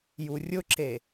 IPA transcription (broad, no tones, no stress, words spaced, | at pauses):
jurʲʊǁe